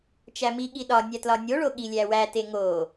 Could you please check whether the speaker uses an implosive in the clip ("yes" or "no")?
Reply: yes